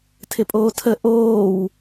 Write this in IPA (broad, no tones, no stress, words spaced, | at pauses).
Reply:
tʰɪpʼoːtʰə ʔoːw